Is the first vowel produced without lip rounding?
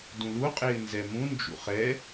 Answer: no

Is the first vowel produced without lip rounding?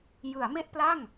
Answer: yes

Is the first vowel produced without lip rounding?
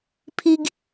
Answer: yes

